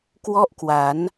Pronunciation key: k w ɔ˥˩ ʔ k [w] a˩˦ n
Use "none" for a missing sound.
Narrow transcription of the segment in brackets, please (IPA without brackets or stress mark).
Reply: w